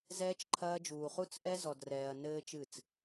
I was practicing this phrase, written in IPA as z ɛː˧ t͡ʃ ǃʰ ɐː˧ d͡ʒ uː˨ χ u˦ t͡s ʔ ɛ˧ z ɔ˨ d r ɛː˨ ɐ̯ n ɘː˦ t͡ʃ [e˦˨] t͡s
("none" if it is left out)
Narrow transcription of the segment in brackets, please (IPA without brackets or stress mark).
ɨ˦˨